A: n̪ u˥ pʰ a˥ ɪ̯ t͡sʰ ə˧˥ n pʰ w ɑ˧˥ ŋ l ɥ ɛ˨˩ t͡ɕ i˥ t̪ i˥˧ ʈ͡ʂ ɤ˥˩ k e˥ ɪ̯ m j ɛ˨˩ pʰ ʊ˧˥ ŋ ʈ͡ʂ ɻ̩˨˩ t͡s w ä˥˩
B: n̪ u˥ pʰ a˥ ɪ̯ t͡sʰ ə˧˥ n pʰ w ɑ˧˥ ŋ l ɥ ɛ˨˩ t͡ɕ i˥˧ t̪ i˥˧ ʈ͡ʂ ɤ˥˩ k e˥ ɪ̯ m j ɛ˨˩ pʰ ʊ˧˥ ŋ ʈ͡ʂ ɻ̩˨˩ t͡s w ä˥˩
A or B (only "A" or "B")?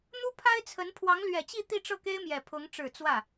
B